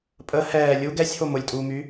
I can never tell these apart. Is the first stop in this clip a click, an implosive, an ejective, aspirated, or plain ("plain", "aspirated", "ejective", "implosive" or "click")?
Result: ejective